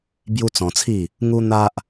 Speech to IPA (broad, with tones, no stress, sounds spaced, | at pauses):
b j u˦ t͡s ɔ̃˧ t͡sʰ i˥˧ | ŋ u˦ n̪ a˦ ʔ